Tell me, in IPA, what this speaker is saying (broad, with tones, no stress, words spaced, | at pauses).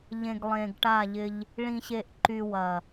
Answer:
ʎẽ˨ɡlˠẽ˨ɡʈa˦˨ʎɪ˦ʎ | ɭĩ˨ɕe˨ʔǃy˨ wɐ˨